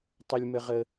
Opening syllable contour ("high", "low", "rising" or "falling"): high